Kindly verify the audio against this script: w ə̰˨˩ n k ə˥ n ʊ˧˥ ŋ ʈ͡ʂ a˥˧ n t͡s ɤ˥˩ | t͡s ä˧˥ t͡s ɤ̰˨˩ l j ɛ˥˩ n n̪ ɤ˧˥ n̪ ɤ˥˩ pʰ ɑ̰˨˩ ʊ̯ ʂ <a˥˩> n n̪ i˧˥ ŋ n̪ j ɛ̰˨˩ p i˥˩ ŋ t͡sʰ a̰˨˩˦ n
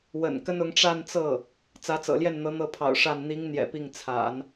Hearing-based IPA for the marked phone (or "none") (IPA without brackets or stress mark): a˥˩